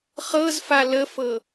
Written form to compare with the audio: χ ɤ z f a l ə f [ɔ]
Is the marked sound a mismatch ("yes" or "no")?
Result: yes